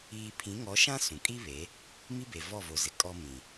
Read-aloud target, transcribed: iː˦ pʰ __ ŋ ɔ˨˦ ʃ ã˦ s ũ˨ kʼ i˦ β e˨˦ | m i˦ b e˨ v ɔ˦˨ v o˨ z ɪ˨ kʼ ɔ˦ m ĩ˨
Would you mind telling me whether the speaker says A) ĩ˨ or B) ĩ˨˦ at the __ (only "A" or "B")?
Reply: B